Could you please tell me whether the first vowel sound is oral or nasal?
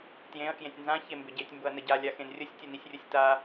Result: nasal